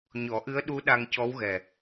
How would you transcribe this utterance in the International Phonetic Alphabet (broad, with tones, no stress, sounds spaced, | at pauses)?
ɲ ɔ˨˩˦ ʔ ɨ˧˥ ə̯ ɗ u˧˥ ɗ a˧ ŋ c ɔ˧˥ w ɣ ɛ˨˩